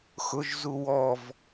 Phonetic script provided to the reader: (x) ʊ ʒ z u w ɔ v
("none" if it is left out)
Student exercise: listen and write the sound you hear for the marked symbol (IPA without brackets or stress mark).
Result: x